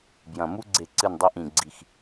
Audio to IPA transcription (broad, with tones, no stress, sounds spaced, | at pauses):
b j ɐ̃˨˩ m u˧ ɡ͡ǀ e˨˩ ǀ ɨ˨˩ n dˤ i˧ ʔ ĩ˨˩ ɡ͡ǀ i˨˩ x